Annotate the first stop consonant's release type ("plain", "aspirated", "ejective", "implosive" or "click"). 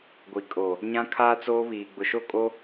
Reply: plain